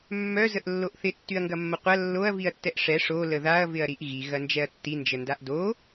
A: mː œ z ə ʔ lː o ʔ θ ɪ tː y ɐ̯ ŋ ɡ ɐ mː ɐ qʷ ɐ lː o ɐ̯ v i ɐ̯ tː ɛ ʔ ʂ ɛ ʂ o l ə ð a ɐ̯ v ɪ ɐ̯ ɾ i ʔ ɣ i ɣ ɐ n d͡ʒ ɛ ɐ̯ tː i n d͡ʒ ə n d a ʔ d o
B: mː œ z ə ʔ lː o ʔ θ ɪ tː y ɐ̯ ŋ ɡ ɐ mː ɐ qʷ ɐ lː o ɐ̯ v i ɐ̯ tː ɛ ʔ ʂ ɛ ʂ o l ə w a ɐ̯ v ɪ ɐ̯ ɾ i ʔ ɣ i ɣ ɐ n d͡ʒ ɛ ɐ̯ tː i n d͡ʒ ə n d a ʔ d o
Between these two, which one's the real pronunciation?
A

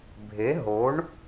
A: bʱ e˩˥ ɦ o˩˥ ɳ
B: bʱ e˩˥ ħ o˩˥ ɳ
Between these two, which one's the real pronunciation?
A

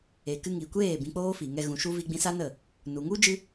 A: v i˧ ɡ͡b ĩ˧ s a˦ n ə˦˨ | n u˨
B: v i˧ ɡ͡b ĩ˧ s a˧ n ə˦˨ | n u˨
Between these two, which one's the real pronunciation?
A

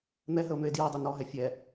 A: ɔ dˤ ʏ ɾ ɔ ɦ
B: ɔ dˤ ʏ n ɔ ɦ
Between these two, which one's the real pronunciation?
B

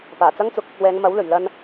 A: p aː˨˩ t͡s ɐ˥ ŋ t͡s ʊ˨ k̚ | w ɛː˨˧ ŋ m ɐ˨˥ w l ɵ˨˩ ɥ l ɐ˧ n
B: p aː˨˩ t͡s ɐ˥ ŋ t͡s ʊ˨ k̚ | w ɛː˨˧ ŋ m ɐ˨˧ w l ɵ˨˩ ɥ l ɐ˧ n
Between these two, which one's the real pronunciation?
A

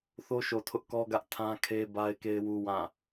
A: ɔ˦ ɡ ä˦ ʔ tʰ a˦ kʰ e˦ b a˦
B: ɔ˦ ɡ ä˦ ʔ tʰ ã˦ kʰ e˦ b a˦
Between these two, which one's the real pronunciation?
B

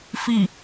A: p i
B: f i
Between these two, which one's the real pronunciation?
B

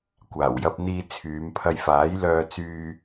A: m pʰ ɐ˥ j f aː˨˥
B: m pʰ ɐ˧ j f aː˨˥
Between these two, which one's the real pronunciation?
B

